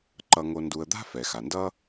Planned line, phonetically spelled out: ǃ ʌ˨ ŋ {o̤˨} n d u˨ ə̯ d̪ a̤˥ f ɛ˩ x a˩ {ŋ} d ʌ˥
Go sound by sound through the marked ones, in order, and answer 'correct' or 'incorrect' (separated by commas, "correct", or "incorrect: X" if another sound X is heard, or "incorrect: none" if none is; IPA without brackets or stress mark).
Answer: incorrect: o˨, incorrect: n